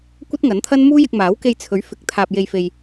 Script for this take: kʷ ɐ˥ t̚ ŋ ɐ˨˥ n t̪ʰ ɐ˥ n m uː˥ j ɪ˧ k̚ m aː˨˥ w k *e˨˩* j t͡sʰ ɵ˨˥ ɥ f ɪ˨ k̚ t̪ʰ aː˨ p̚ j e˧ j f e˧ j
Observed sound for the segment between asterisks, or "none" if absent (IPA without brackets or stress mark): e˧